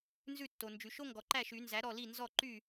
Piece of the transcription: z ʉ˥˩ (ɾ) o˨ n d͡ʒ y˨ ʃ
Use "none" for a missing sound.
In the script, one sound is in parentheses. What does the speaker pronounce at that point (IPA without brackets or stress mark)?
tː